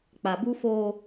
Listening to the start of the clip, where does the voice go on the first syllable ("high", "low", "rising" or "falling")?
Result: low